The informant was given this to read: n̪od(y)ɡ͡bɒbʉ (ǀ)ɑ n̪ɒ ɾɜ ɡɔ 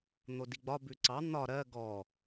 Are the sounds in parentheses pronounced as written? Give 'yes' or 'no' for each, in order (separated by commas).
no, yes